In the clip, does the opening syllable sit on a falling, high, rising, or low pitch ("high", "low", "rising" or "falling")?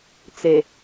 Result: low